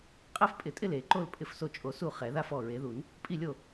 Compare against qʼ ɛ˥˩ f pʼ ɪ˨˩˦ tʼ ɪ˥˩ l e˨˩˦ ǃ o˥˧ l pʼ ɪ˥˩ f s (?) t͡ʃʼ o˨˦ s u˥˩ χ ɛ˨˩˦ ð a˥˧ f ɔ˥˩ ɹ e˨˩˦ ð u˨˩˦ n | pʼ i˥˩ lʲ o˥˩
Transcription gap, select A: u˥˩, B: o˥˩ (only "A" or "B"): B